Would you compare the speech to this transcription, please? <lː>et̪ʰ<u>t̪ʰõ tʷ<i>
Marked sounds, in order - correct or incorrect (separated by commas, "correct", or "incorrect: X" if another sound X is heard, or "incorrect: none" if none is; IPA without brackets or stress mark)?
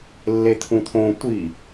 correct, incorrect: ũ, correct